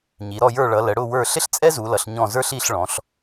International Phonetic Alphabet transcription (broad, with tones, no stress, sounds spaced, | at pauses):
ɲ i˩˧ ɾ ɔ˦˨ j ə˞˦˨ ɭ ʌ˩˧ l ə˩˧ ɽ ʊ˦˨ w ə˞˦˨ ɬ ɪ˥ ɬ t͡sʼ ɛ˥ z u˩˧ l ʌ˩˧ ɬ ɲ ɔ̃˦˨ z ə˞˥ ɬ i˦˨ ɬ ɭ ɔ̃˩˧ ɬ